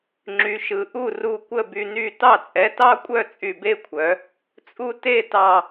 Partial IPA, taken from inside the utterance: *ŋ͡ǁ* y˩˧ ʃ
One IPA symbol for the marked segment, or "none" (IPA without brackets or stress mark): ŋ͡ǁ